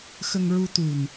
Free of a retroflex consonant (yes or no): yes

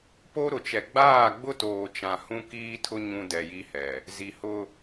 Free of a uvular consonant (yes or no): yes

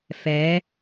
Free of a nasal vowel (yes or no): yes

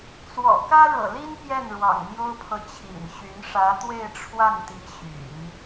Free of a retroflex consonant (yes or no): no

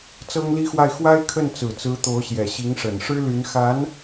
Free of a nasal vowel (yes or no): yes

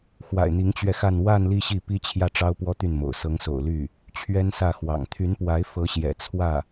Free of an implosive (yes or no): yes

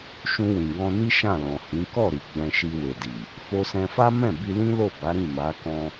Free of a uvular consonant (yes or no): yes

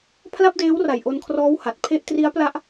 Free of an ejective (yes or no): yes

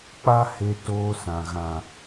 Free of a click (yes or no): yes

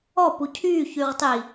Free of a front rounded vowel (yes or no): no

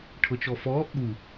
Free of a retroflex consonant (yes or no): no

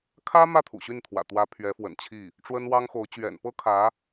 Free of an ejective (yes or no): yes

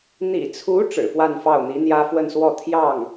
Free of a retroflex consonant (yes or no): no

